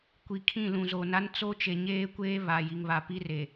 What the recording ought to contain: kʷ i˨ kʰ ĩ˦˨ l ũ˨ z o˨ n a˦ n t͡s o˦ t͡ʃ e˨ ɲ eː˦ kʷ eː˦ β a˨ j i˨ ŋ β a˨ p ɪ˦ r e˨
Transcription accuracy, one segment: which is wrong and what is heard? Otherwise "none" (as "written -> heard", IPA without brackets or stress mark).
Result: ɪ˦ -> i˦